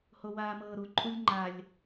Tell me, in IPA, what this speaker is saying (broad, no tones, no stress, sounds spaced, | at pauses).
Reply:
h o w aː m ɤː ɾ u ǃʼ u lʲ ŋ͡ǃ a lʲ